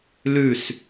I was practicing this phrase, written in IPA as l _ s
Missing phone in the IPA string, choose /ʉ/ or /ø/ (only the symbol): ʉ